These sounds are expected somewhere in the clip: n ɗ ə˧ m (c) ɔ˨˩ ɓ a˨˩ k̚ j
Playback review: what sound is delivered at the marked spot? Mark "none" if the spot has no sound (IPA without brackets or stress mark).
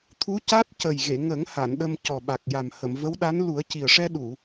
c